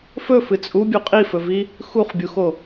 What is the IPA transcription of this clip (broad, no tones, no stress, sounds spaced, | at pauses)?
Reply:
f ɵ f ɨ t͡sʼ u bʲ u qʼ i f ɵ v i | x u χ bʲ u x o